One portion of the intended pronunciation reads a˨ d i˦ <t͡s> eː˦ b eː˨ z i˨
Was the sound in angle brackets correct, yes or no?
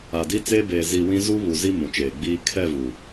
yes